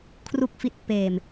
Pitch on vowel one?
low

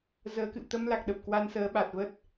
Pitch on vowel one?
rising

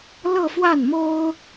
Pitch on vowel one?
falling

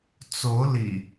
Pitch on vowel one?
rising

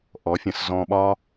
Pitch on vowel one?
rising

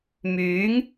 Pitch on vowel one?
rising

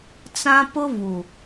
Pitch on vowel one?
high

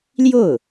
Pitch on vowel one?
falling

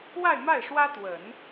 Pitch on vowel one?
falling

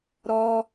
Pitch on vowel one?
high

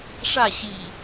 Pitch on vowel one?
falling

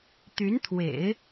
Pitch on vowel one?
rising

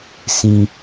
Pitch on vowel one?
low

